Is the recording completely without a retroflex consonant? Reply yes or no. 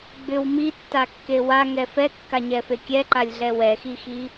yes